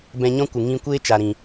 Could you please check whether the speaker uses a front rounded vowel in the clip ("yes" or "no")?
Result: no